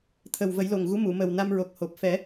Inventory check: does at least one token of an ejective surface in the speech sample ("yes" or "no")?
no